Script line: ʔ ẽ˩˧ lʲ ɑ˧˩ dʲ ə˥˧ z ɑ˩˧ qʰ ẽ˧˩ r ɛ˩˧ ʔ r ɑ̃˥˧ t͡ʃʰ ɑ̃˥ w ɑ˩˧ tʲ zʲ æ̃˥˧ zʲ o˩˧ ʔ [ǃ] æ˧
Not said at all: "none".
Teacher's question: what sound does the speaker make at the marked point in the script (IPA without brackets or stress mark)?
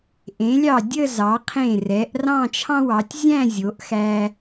x